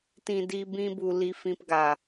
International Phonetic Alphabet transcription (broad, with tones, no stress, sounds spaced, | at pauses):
t ĩ˧ d i˧ b ĩ˧ b u˨ l i˧ f ĩ˧ p ɡ a˨